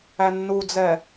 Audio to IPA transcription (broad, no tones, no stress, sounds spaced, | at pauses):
æ nː u d͡z ɛ